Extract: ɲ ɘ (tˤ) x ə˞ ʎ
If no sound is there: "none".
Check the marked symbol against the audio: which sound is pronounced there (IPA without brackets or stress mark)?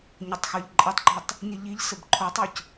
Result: tˤ